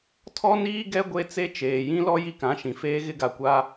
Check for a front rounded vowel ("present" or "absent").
absent